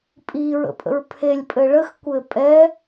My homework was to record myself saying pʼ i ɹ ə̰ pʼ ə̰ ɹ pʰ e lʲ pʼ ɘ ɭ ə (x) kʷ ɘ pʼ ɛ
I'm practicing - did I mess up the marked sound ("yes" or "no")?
no